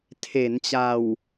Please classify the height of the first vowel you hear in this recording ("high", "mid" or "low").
mid